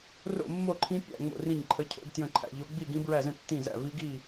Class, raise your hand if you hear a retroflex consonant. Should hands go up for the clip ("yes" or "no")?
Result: no